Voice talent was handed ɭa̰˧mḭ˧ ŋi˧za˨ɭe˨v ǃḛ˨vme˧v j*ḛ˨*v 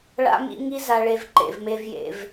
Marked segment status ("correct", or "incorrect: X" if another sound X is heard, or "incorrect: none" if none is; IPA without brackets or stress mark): correct